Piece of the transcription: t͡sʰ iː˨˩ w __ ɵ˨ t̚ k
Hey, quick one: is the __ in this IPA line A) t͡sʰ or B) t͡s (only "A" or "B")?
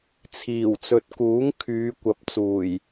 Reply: B